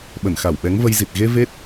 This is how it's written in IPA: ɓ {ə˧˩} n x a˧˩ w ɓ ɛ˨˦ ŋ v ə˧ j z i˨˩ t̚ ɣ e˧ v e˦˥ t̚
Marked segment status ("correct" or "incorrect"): correct